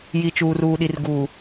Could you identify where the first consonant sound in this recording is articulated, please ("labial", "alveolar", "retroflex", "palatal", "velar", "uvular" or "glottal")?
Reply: palatal